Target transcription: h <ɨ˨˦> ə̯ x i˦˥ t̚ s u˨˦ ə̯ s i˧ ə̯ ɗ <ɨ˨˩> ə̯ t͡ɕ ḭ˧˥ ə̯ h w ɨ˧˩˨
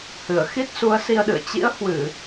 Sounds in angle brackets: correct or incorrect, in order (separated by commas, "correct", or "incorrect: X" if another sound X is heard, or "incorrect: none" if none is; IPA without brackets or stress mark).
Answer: incorrect: ɨ˧˩, incorrect: ɨ̰˧˨